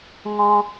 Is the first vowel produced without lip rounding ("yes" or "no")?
no